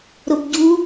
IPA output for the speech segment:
ɾobɟu

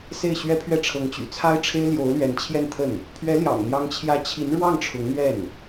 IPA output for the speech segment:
se˥˩ɪ̯ɕɥɛ˥pʰɥɛ˥˩ ʈ͡ʂʰɤ˧˥ŋt͡ɕy̰˨˩t͡sʰa˥ɪ̯ʈ͡ʂʰe˥ɪ̯ ljo˧˥ʊ̯lɥɛ˧˥nt͡ɕʰjɛ˥˧nt̪ʰə˥˩n | pʰɥɛ˧˥ljɑ̰˨˩ŋn̪jɑ˧˥ŋt͡ɕʰjä˧˥ t͡ɕʰi˧˥nɻwɑ˥˩ŋ ʈ͡ʂʰʊ˧˥ŋn̪ɥɛ˥˩n

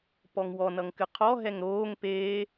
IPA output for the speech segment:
pɔŋwɔ nʌŋkɨqʰɔ ɦɛŋɾoːŋ peː

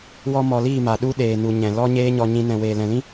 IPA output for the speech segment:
wɔ˦mɔ˧liː˦˨ma˨ ɗu˦ɗeː˨nu˨ ɲɛ̃˨ lɔ˦ ɲeː˦ɲɔ˧ɲĩ˧ nɛ̃˨weː˨ lɛ̃˨lĩ˦

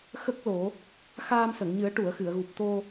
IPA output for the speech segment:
xə˦˥k̚ lo˨˩˦ | xaː˧msə˨˩˨ŋɲɨ˨˩˦ə̯ ʈu˨˩˨ə̯xɨ˨˩˨ə̯ɣu˨˩p̚ t̪o˧

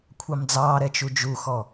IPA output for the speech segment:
kʷʰɑmd͡zɑːɾɛ t͡ʃud͡ʒuxɔ

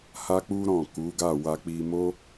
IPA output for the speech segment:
ha˦k͡pu˦ɾɔ̃˦˨ ku˨˦ɡa˦˨ wa˧k͡pi˧mo˦

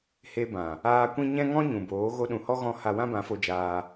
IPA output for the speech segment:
he˧bã˨ | aː˧kʷĩ˦ ɲɛ̃˦ŋɔ̃˦ ɲũ˨boː˨˦ ɣo˧ɗũ˨hɔ˦ ɣɔ̃˦ ha˧wã˦bã˨˦fo˧ d͡ʒaː˧

